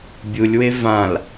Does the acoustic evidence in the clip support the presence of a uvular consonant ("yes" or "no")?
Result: no